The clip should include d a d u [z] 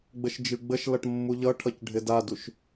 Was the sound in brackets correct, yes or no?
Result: no